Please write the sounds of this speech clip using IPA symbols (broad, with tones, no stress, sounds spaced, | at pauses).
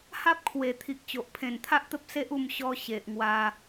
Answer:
h a˦ p̚ kʰ w e˨˩ t̪ʰ i˨ k̚ t͡ɕ o˨ ʔ pʰ ẽ˨˩ n t̪ʰ a˦ ʔ t̪ ə˦ p̚ s e˦ ʔ u˥˧ m ɕ ɔ˧ ɕ e˨ ʔ ŋ w a˧